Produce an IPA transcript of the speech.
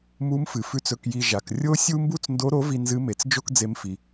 m u˧˥ m f ɨ˩ f ʉ˧ t͡s ɵ˧ k j i˧ ʒ a˩ k rʲ o˥ sʲ u˥ m b u˥ t͡s n d o˧˥ ɾ o˧˥ v i˧ n z ɨ˧˥ m e˩˧ t͡s d͡ʒ o˥ k d͡z e˧ m f i˩

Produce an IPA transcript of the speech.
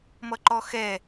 m ʌ ǃ ɔ x ɛ

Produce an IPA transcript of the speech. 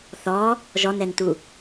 θ ɔ | ʒ ɔ n ɛ n t u

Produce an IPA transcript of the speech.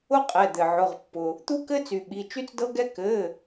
ʊ˦ qʼ ɛ˩˧˩ d̪ ɘ˩ ʕ ʊ˩˧˩ ʁ pː ʊ˩ | t̪ u˦ k ɘ˦ t͡s y˩ ɓ i˩˧˩ t͡ʃ y˦ t͡s d ɤ˦ ɡ ɛ˦ k ɘ˩˧˩

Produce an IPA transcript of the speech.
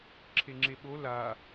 ǁʰ e ŋ͡ǁ e ɓ o l a

